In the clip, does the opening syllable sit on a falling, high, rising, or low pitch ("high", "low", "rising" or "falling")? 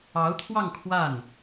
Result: rising